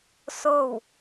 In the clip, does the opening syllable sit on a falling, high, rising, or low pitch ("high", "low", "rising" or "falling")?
falling